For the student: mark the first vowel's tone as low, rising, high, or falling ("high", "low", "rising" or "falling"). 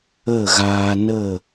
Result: falling